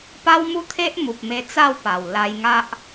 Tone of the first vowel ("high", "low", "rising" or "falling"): high